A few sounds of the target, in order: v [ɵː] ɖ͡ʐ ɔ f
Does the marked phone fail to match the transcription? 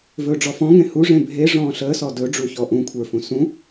no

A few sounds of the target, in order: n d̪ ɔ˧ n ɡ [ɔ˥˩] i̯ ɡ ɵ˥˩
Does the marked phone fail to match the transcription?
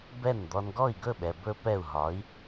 no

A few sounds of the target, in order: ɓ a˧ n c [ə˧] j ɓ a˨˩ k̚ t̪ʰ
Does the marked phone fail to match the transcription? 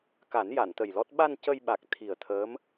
no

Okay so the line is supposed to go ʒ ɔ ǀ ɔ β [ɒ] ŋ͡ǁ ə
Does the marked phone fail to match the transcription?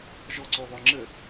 no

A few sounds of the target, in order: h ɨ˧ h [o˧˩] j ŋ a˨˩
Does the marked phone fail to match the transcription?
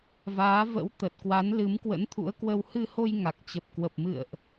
yes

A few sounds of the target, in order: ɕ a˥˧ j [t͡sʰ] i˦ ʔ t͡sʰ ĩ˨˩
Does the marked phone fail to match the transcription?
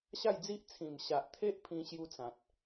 yes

